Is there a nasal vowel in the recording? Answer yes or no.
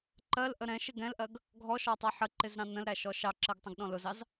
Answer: yes